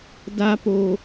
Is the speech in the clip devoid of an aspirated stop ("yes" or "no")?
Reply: yes